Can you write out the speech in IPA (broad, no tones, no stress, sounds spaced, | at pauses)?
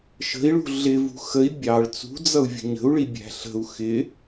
ʃ ə̤ i̯ ɭ ṳ ɮ ɪ v ṳ x ə i̯ bʲ ɑ ɭ t͡s ṳ d͡z ʌ u̯ vʲ ə̤ ɲ ə̤ u̯ ɭ i bʲ æ̤ ɬ ə̤ u̯ x ɪ